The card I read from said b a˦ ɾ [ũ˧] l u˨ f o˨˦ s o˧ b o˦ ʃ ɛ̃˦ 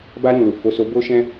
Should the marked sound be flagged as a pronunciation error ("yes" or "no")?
yes